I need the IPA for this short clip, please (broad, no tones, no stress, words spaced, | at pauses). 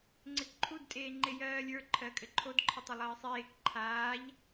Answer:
ŋ͡ǀɪkǃʰud tʼeːŋ͡ǃejɜːlʲə˞ ǃʰɜkʼɘǃʰod ǃʰɪtˤɘlˠɜːsˤeːk ǃʰaːʎ